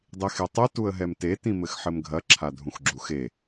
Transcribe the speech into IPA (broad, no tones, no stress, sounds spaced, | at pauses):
dˤ i x e tˤ e t u ə̯ ɦ ɛ m t e t ĩ m ɘ x ħ ɘ m ɡʱ ɐ ǁʰ a dʱ ũ x ɡ͡ǁ u x e